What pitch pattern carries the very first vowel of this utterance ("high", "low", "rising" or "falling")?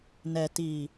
low